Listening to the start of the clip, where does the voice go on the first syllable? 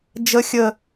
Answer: low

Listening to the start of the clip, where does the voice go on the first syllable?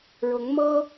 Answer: rising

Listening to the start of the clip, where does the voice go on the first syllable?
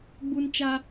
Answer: high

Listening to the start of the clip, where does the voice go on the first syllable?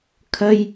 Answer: high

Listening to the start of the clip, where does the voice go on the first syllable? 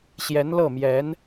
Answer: rising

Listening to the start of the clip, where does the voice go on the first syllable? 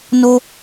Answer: high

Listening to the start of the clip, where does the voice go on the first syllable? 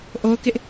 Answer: high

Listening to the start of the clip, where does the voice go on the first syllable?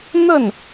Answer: falling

